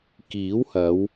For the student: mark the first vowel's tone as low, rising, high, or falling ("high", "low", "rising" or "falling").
rising